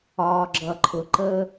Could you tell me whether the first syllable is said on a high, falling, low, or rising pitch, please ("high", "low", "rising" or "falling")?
low